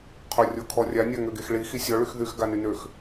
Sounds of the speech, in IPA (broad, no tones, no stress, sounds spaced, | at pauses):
qʰ o rʲ o kʰ ɔ rʲ a nʲ a ŋ ø ɡ e x ɭ i x i sʲ ɔ ɭ y x ð y x ɡ a n y n ø x